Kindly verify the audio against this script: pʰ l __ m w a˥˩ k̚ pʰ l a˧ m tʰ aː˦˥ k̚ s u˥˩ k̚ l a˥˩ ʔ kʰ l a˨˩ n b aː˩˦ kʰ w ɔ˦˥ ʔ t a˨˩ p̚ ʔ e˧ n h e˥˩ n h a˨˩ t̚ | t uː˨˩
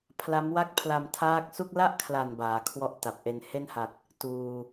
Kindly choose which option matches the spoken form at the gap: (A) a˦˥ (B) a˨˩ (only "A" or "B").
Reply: A